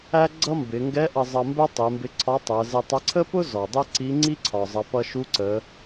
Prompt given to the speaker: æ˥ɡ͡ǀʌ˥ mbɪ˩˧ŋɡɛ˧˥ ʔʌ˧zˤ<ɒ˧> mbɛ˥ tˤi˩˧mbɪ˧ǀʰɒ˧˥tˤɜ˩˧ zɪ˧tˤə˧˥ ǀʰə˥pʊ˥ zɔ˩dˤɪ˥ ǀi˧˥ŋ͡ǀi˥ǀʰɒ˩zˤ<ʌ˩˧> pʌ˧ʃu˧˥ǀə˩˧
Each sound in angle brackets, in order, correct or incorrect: incorrect, correct

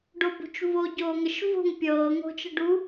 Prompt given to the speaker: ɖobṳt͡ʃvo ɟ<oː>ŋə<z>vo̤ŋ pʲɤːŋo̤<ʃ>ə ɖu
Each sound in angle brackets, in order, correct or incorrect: correct, incorrect, incorrect

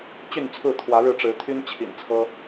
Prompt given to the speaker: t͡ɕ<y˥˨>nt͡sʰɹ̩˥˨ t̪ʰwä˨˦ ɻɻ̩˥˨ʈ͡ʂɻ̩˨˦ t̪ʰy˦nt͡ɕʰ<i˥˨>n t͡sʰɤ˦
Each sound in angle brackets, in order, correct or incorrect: correct, incorrect

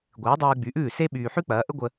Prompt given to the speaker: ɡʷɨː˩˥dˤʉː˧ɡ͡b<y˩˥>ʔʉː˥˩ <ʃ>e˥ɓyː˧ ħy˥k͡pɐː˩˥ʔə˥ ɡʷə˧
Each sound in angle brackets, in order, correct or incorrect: correct, incorrect

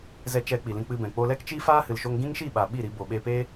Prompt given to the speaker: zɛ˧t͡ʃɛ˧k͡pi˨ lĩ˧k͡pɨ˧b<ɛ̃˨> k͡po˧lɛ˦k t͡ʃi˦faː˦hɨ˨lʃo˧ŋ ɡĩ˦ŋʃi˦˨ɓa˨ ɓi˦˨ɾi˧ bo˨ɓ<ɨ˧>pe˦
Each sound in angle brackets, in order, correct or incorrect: correct, incorrect

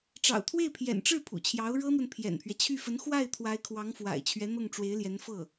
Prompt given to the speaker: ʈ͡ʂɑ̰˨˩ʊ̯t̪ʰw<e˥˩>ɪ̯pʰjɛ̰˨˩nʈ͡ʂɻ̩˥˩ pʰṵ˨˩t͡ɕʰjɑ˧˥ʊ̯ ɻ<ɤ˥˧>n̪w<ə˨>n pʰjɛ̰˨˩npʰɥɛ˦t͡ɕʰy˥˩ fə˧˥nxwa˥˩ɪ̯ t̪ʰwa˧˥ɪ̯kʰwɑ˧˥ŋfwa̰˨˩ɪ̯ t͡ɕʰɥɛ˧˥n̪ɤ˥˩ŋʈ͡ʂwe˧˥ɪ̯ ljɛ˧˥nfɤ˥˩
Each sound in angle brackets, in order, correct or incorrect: correct, incorrect, correct

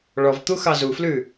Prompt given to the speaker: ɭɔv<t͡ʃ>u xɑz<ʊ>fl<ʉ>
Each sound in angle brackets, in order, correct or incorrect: incorrect, incorrect, correct

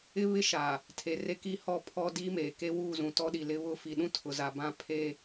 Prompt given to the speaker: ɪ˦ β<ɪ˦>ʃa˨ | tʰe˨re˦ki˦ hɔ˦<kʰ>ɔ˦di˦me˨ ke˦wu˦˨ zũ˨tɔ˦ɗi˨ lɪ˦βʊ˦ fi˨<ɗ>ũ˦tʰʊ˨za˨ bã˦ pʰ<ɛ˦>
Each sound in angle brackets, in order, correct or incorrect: correct, incorrect, correct, incorrect

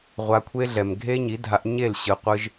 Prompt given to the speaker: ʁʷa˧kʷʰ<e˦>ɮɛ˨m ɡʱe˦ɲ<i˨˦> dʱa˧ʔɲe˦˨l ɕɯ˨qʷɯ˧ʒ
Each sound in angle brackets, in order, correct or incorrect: correct, correct

